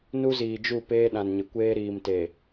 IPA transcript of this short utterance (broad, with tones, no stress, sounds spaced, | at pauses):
n u˦ z iː˨ d͡ʒ u˦˨ p eː˦ ɗ ã˨ n ɲ ɪ˨ kʷ eː˦ ɾ iː˨ m t e˨